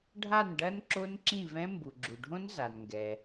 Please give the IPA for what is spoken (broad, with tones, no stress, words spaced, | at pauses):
ɖʱa˥˩nɖɐ˦˥n ǁo˦˥nǁĩ˥˩vɛ̃˦˥ mbu˩ɡ͡ǁu˩ɖʱõ˦˥n za˩nŋɡɛ˩